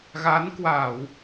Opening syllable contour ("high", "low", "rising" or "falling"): rising